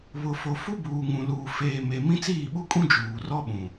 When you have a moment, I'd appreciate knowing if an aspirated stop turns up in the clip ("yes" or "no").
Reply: no